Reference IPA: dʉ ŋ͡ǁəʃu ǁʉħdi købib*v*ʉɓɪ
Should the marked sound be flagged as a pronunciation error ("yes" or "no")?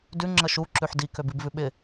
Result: no